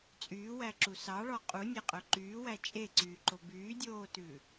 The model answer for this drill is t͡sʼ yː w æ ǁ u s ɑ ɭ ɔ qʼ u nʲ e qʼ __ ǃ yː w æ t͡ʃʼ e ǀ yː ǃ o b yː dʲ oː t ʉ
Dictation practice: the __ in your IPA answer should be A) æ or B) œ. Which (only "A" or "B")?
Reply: B